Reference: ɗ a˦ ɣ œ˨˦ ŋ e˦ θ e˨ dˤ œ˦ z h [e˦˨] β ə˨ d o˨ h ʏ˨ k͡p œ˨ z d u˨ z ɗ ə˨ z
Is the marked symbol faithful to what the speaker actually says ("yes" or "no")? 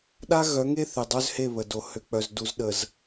yes